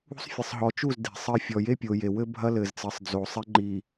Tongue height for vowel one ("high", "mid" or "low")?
high